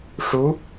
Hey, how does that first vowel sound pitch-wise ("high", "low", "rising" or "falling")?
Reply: rising